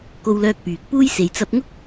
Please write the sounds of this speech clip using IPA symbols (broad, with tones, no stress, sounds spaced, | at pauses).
k o˧ w l œː˧ k̚ p yː˨ k̚ p uː˥ j s e˨ j t͡s ɐ˧ p̚ ŋ ʊ˥ k̚